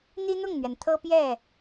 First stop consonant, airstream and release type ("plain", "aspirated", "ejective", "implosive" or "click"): aspirated